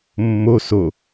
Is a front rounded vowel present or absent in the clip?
absent